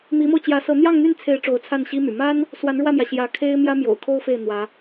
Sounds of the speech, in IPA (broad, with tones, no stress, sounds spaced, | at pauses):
m i˧˥ m o˧ ʊ̯ t͡ɕ j ä˧˥ s ɤ˧˥ n̪ j ɑ˥˧ ŋ n̪ y˥˩ n t͡sʰ e˧˥ ɪ̯ ʈ͡ʂ o˧˥ ʊ̯ t͡sʰ a˥˩ n ɕ i˥ m y̰˨˩ m a˥ n | s w a˧˥ n ɻ w ä˥˩ m j ä˩ ɕ j ä˧˥ kʰ e˥ ɪ̯ m j ä˥ m j o̰˨˩ ʊ̯ kʰ o˥ ʊ̯ f e˥˩ ɪ̯ n̪ w ä˧˥